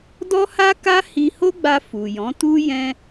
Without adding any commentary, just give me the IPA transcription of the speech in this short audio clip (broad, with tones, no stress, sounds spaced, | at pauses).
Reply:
d ɔ˦ h a˦ k a˦ h i˧ h o˦ ɡ͡b a˧ f u˨ j ɔ̃˨˦ t u˦ j ɛ̃˧